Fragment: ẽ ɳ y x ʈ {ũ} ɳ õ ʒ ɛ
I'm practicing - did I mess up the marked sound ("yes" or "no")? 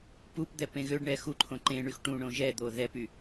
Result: no